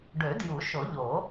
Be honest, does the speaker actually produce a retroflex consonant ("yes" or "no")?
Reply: yes